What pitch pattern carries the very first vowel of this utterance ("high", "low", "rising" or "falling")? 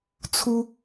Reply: high